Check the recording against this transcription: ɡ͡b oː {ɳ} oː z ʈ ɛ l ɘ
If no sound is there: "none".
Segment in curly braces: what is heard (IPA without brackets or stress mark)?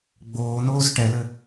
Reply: n̪